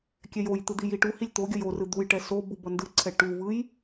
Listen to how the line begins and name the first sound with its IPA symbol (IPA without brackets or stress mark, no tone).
kʲ